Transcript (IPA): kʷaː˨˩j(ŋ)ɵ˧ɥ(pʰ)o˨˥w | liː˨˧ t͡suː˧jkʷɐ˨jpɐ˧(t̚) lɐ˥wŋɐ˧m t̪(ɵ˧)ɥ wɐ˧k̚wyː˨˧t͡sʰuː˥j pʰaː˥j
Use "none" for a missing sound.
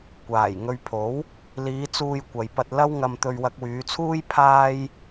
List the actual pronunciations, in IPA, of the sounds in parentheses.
ŋ, pʰ, t̚, ɵ˧

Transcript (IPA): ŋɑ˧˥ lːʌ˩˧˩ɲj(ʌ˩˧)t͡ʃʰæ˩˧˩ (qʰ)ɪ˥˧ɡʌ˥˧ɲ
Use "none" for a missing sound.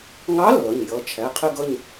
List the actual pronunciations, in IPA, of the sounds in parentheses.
ʌ˩˧˩, qʰ

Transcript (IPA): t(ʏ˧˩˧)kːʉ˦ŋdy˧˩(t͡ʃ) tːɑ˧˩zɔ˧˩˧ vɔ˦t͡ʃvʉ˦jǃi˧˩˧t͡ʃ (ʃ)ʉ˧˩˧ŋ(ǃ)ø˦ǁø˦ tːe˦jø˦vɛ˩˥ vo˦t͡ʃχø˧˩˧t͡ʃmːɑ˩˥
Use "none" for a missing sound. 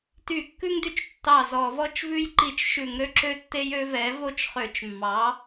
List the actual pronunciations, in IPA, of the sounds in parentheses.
y˧˩˧, t͡ʃ, ʃ, ɾ

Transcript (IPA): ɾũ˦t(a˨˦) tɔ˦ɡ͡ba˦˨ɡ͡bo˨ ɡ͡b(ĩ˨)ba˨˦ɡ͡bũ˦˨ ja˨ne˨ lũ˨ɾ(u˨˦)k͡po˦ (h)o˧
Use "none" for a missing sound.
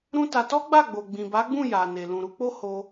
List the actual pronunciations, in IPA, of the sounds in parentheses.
a˧, ĩ˨, u˨˦, h

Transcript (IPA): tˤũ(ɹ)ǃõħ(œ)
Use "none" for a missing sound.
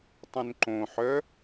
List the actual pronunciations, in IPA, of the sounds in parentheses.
n, œ

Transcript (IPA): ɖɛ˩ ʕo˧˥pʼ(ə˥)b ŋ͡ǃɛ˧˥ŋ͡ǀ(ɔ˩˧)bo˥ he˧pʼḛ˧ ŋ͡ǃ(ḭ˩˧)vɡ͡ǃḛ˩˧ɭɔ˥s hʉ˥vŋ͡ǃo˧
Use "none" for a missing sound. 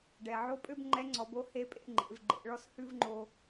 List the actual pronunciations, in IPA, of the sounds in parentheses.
ø˥, ɔ˩˧, ḛ˩˧

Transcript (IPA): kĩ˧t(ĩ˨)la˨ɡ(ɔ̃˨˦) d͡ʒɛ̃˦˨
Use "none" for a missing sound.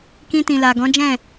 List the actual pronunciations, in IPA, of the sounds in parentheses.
ĩ˨, ɔ̃˨˦

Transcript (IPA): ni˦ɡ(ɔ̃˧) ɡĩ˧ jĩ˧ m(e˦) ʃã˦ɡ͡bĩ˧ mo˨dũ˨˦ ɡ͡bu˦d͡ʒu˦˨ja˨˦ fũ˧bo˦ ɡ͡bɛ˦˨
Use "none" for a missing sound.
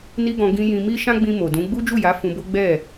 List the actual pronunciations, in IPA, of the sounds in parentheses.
ɔ̃˧, i˦

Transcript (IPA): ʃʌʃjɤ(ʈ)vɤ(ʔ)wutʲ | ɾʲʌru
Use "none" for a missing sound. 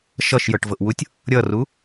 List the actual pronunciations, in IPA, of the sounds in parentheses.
ʈ, ʔ

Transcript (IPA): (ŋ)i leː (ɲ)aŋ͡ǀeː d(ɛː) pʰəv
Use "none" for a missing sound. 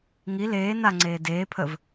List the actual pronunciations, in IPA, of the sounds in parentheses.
ŋ, n, eː

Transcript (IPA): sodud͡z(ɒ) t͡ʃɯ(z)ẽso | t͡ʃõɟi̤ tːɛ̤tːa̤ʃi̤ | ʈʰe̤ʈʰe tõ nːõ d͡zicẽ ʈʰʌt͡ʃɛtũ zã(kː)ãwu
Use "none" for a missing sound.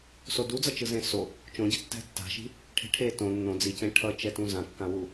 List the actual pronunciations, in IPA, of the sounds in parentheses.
ʌ, z, kː

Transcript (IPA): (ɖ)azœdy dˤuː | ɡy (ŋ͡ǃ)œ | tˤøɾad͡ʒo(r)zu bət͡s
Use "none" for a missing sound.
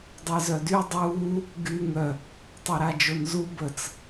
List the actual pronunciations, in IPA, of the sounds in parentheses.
dˤ, ŋ, n

